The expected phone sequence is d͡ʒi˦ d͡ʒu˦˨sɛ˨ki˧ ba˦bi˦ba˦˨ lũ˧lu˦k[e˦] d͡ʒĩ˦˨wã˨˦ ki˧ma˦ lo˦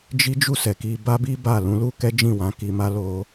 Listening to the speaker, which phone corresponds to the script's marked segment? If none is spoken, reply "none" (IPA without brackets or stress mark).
ɛ˦